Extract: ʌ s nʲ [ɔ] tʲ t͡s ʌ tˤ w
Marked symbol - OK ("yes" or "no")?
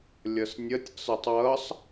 no